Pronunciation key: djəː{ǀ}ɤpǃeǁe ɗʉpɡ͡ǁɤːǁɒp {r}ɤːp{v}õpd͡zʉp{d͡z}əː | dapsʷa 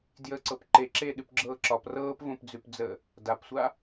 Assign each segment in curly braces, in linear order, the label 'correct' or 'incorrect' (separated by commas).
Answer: correct, correct, correct, correct